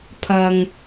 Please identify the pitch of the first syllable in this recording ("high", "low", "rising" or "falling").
low